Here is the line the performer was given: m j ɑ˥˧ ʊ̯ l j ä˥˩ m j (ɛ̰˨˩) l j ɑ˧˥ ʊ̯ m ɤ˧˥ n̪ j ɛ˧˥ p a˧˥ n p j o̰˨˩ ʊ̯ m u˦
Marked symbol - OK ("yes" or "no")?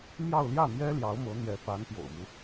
no